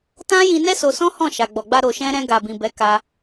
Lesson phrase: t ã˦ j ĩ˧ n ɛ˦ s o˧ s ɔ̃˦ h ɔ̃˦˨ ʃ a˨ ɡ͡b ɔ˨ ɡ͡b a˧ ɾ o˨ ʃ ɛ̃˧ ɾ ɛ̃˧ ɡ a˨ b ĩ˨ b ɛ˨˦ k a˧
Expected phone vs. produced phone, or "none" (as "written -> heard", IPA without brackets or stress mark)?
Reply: none